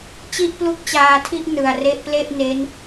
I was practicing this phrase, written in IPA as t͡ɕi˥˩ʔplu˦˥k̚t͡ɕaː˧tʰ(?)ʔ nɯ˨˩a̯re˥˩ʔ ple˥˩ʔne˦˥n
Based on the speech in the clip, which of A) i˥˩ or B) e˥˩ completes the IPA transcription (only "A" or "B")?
A